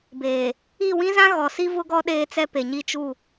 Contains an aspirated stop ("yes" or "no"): no